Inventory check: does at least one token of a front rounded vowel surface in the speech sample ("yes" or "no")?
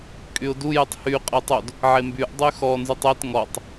yes